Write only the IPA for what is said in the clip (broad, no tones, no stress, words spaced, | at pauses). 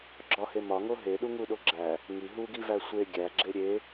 ɡ͡ǁɒhe mɒŋo ɦeɗuŋuɗo ɡ͡ǁæ | ŋi ɦuɡivæ sʷe ɡʲæɡ͡ǁe ɾʲe